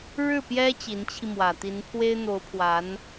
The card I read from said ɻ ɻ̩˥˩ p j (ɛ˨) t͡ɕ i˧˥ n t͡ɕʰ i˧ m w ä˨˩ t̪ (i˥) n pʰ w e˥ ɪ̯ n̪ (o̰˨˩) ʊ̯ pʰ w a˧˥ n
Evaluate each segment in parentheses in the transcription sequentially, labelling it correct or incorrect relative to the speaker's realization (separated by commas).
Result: incorrect, incorrect, incorrect